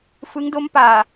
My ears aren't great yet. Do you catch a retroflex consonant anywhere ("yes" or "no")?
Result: no